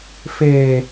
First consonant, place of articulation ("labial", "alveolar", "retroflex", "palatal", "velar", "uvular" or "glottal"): labial